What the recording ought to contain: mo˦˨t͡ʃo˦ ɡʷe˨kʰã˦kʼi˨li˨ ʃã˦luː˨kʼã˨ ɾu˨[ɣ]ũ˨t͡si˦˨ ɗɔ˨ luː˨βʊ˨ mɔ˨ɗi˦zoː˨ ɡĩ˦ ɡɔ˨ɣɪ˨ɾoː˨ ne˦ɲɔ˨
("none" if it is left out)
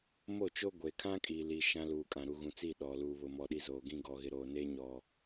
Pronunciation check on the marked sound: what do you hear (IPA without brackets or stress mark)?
ɣ